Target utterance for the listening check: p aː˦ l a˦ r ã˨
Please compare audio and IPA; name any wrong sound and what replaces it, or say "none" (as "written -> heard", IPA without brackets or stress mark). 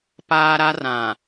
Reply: l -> ɾ